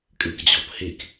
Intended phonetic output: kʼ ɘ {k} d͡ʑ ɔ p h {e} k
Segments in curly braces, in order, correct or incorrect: correct, correct

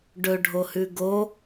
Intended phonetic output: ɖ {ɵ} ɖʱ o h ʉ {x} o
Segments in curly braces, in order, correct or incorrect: correct, incorrect: ɡ

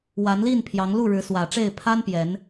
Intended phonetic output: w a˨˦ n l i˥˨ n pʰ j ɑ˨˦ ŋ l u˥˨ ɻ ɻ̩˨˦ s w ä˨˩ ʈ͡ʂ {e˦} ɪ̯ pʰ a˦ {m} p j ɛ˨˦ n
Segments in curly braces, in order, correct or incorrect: incorrect: e˥˨, incorrect: n

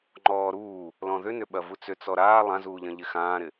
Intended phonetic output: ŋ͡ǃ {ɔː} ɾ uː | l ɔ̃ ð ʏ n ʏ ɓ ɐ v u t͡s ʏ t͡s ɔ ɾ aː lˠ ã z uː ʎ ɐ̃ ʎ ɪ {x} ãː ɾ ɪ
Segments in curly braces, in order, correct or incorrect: correct, correct

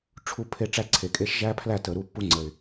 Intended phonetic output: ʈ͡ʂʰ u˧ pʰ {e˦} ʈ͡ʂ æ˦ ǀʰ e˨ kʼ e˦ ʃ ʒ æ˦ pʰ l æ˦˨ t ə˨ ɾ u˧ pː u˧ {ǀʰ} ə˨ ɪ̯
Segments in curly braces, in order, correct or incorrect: incorrect: e˧, incorrect: ŋ͡ǀ

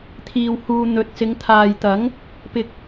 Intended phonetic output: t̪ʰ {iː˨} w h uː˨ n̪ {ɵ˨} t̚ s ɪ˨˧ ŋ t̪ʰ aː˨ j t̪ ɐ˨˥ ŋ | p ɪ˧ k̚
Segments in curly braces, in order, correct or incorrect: correct, correct

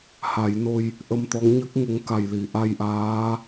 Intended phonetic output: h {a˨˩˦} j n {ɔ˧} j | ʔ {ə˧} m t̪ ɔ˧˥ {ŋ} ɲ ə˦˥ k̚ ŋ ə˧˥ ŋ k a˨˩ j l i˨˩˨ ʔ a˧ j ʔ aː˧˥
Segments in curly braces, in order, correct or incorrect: correct, incorrect: o˧, correct, correct

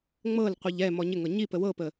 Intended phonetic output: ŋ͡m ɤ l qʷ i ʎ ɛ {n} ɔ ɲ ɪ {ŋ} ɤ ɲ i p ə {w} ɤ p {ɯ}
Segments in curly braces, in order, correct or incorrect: incorrect: m, correct, correct, incorrect: ə

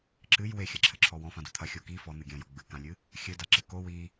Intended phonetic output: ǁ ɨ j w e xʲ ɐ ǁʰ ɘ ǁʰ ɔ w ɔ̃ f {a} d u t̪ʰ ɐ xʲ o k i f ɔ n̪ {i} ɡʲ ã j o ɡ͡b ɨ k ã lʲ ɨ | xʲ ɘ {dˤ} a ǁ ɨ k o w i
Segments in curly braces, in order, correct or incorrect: incorrect: ã, incorrect: ɨ, incorrect: d

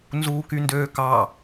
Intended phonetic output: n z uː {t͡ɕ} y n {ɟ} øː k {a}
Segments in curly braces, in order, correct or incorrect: incorrect: k, incorrect: d, incorrect: ɑ

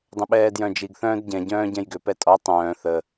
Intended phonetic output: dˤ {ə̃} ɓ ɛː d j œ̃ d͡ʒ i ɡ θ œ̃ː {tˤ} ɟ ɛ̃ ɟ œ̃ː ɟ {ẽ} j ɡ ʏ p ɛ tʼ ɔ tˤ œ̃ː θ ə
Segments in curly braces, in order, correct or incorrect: correct, incorrect: d, incorrect: ɛ̃

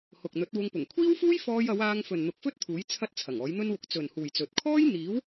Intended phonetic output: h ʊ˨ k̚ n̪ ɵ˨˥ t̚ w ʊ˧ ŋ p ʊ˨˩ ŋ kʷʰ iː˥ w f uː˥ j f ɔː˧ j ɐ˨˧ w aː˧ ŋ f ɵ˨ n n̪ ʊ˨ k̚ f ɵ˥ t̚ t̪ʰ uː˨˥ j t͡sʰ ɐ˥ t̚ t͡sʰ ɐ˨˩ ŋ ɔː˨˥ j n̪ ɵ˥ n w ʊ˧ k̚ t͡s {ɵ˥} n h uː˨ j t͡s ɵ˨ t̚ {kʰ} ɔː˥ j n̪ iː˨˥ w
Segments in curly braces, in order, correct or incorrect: incorrect: ɵ˨, correct

